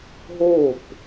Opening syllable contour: falling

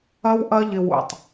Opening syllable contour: high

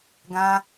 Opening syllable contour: high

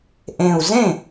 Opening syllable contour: low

